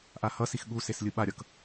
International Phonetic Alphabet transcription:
ʔahʌsix ɠuses lʲɯɓaɾʲʌk

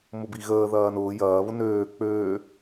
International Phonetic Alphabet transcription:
mʊbiɣəː ðɐːnʊː jɐː βʊnøː k͡pøː

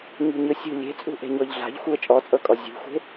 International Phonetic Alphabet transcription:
ɲṳɲɯsʲṳ lʲe̤t͡sʼṳ ʔe̤ɲɔʎɮa̤ʎ xʷɯə̯t͡ʃʼɔt͡sʼɤkʼɔ zʲṳxʷe̤

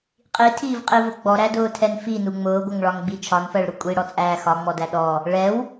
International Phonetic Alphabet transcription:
qʼitʰiːvqʼivʊ ɡ͡bɔɾædʊːtʰɛn finu ŋ͡mʊːɡʷʌŋɭɒŋɡ͡bi t͡ʃʰɒnfɜɭɾʊ kʷʼiɽɔt͡sʼæː xɒŋ͡mɔdæ ɗɔ | ɭɛw

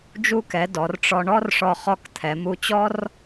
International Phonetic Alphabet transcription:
d͡ʒu˧kɛ˩˧ dɔ˩˧rʈ͡ʂɔ˧ɳɔ˥rʂɔ˧ χɔ˧kt̪ʰɛ˩˧mu˧t͡ɕɔ˥r

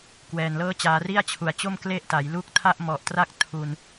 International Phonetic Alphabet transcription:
kwɛː˨˩nlɤː˥˩t͡ɕaː˧ ri˥˩a̯t͡ɕʰu˨˩a̯t͡ɕo˥˩m kle˥˩ʔta˩˦j lu˦˥k̚tʰa˥˩ʔmɔ˨˩ʔtra˥˩k̚ tʰu˧n

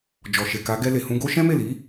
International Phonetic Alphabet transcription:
d͡ʒɔ˨ʃe˨ka˨˦ ɡɛ˧le˨hũ˧ ɡo˦ ʃɛ̃˦me˦˨li˨˦

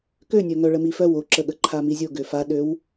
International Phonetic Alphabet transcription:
kønʲœ ŋœɭəmifœw oǁəɠə ǃʰamizʲo ɡøfaɗøw

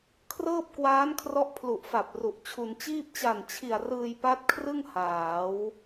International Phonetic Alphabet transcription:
kʰrɤː˥˩p̚kwaː˦˥nkʰrɔ˦˥ʔ pʰlu˨˩ʔfa˨˩p̚ ru˨˩ʔt͡ɕʰu˧n t͡ɕiː˥˩p̚ t͡ɕa˨˩nt͡ɕʰi˨˩a̯ rɯː˧jpa˦˥t̚kʰrɯ˥˩ŋ haː˩˦w

